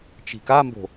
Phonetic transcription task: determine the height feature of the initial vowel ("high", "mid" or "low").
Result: high